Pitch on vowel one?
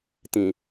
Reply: low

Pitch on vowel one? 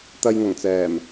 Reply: low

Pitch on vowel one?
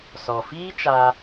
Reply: low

